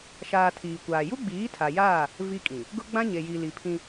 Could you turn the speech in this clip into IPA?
ʃaː˨ tʰiː˨kʷaː˨ ju˦ɡ͡biː˨˦ tʰa˨jaː˦˨ | vi˦kʼĩ˨ | ɡʊ˦ɡ͡bã˦ ɲe˨ji˨li˨ pʰĩ˦

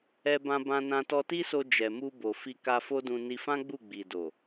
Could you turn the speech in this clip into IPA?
ɛ˧bã˧bã˧ nã˧tɔ˧ti˦so˧ d͡ʒɛ˨mu˧bo˨ fi˧ka˧fo˦dũ˧ ni˧fã˦ɡ͡bu˦˨ ɡ͡bi˨do˨

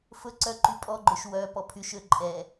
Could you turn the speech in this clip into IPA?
fɵǀœ ǃypʼɔɡ͡ǃøʃ wœpɔ pʰyʃø ǃʼɛ

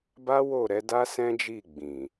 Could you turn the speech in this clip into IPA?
ba˦ wo˦˨ ɾɛ˨˦da˦sɛ̃˦d͡ʒi˦˨ ɡ͡bĩ˨

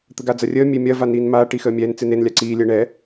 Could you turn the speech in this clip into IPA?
t̪əɡad͡zɐrʲəː mʲemʲɐ vaniːnmaː ʈixəːmʲɛːn t͡senen lʲaǀiː lʲəːɳɛ

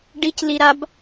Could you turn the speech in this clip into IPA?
ɖicliɾab

